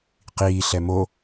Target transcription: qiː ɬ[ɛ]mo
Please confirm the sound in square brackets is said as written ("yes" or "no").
yes